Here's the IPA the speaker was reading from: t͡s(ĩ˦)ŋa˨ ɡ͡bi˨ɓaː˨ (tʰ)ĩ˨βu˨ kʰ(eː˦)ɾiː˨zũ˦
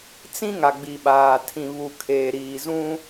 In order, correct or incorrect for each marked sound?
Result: correct, correct, incorrect: eː˨

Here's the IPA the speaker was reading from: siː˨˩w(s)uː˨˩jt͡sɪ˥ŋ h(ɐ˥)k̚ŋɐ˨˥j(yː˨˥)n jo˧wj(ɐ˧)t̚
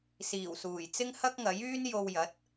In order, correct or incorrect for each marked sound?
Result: correct, correct, incorrect: yː˥, incorrect: ɐ˨˥

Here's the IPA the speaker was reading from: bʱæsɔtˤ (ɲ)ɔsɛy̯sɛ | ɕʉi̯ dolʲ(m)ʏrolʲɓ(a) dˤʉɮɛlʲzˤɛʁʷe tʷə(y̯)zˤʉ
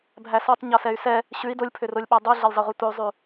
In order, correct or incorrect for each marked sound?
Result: correct, incorrect: pʰ, incorrect: æ, correct

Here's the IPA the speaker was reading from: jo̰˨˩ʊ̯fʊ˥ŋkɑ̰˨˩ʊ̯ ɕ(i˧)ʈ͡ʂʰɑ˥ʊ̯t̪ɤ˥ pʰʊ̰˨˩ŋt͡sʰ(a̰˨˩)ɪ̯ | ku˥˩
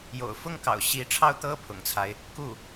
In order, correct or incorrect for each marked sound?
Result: incorrect: i˧˥, incorrect: a˦

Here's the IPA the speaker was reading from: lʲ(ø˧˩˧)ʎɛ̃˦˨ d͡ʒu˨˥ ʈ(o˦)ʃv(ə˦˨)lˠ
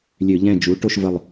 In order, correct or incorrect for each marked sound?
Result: correct, correct, correct

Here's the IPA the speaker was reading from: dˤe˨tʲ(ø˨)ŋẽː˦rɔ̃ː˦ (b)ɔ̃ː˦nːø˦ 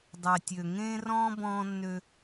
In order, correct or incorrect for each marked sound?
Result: correct, correct

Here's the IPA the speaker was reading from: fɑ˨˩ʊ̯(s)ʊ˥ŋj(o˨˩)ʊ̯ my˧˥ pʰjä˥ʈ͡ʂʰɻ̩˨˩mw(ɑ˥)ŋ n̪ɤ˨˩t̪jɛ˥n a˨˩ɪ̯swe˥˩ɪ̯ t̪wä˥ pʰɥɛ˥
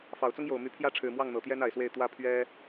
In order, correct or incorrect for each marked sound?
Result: incorrect: t͡s, correct, incorrect: ɑ˥˩

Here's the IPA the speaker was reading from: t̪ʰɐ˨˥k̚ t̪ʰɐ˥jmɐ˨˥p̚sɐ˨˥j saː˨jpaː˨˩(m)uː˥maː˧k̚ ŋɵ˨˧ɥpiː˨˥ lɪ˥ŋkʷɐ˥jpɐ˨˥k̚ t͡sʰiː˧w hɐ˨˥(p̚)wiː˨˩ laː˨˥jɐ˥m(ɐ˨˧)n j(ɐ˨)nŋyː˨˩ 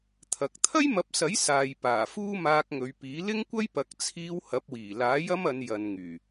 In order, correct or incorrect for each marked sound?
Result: incorrect: f, correct, correct, correct

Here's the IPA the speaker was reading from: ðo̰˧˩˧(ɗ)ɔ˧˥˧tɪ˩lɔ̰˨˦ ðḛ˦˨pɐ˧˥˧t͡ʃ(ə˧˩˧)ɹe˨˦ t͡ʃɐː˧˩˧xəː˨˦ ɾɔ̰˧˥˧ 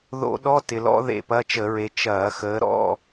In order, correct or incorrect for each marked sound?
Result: correct, correct

